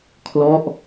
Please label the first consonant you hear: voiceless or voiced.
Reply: voiceless